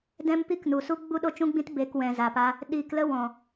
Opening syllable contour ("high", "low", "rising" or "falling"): high